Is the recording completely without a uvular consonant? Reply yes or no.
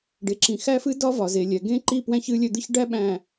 yes